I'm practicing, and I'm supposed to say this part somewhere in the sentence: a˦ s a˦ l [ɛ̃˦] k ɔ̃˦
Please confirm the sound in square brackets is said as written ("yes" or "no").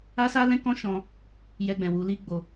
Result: yes